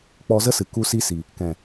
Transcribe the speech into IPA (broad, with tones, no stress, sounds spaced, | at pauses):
k͡p ɔ˧ z ə˦ s ɨ˨ k u˦ s i˦ s i˨ | k ɛ̃˨